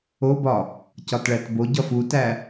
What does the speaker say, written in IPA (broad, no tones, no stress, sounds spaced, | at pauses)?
o b ɒ | c ɒ t ɭ æ t b o ɟ ɒ f u t æ